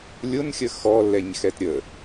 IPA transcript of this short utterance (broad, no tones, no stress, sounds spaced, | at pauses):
lʲ ʊ n xʲ ə x ɔ lː ɛ ɲ x ɛ t ɾʲ ə